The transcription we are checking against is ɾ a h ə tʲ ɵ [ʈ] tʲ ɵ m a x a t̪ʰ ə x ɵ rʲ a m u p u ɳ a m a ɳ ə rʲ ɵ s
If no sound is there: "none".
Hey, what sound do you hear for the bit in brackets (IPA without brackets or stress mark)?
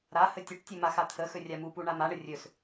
ʈ